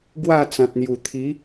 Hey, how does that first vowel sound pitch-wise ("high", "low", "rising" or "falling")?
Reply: falling